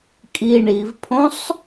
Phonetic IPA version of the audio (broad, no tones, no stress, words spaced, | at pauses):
kʼi ɳivpʰõsˤ